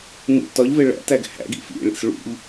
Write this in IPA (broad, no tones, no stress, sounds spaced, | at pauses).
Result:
n ṵ t ɒ ʎ v e ɭ æ̰ t æ ɡ h æ̰ ɡ ḭ f ḭ ɭ ḭ s ɭ ṵ ʎ